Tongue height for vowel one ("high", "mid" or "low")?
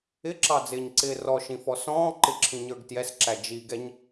high